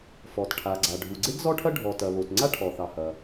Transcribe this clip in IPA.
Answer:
f ɔ˩ t ʈʰ a˩ ɡ͡ǀ a˩ ɖʱ u˩ ɡ͡ǀ e˥ ɡ z ɔ˥ ʈʰ ɐ˥ ɖʱ ɔ˩ t ɐ˩ β o˩ t ŋ͡ǀ a˥ ʈʰ ɔ˩ θ ɑ˩ h ɐ˩

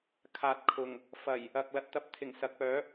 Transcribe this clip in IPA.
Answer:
kʰ aː˨ t̚ kʰ ʊ˨˩ ŋ | f ɐ˨˩ j | ɐ˨ k̚ l ɐ˨ t̚ t̪ ɐ˧ p̚ t̪ʰ ɪ˨˩ ŋ s ɐ˨ k̚ p œː˨˥

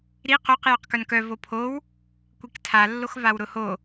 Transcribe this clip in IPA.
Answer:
ɾ i q o q j œ q k œ n k œ v o pʰ o w | kʷ i k tʰ a lː o x v a w ɾ ʊ h o

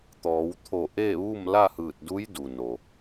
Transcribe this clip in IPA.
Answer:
t̪ ɔː˩˧ w t̪ʰ o˧˩ ʔ eː˥˨ ʋ uː˥˨ m l a˥˨ h ɯː˧˩ t̚ d u˧˥ j d u˩ n o˩

